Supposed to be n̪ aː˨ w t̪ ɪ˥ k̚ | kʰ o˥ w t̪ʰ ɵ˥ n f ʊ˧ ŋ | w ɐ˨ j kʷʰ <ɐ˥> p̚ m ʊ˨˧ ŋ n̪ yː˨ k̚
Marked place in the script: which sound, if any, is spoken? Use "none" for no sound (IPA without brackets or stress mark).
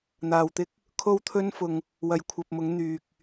ɐ˨